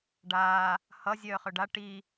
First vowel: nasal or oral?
oral